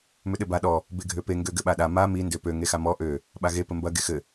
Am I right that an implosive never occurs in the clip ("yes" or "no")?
no